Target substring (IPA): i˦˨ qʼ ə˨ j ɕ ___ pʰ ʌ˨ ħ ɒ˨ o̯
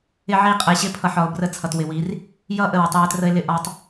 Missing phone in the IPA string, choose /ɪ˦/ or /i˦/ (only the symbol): ɪ˦